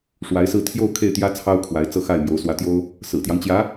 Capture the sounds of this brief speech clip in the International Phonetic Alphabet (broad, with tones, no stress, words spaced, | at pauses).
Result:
ʂwa˧˥ɪ̯sɹ̩˥˧ t̪ʰjo˥˧ʊ̯ kʰe˥˩ɪ̯t̪jä˥ t͡sʰɑ˥ʊ̯kʰwa˧˥ɪ̯ t͡sɤ˥˧xa˥˩ɪ̯ mjo˧˥ʊ̯ swä˧˥t̪jo˥ʊ̯ | sɹ̩˨˩t̪jɑ˦ŋt͡ɕjä˧˥